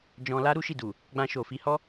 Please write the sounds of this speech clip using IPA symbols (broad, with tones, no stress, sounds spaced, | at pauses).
d͡ʒ ɔ̃˧ l a˦ ɾ u˦ ʃ i˦˨ d u˨ | ɡ͡b ã˧ ʃ o˨ f i˧ h ɔ˦